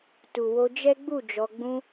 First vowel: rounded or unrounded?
rounded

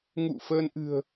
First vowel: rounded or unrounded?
rounded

